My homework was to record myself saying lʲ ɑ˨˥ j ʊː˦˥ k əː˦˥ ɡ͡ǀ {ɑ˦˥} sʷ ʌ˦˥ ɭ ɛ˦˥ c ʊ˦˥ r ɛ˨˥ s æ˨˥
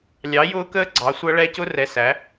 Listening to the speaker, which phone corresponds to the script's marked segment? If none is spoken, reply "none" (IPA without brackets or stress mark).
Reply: ɑ˨˥